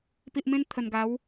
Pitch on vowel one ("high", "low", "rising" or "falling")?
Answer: low